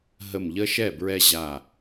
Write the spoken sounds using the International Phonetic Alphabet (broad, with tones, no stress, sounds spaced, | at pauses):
ɦ ə˧˩ m ʎ ə˦ ʃ ɛ˥˩ b ɹ ɛ˦ ʑ a˧˩